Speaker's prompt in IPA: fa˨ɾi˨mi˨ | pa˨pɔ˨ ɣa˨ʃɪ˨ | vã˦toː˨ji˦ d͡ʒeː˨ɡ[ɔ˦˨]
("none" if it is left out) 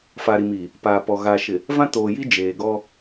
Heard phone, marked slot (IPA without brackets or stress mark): ɔ˦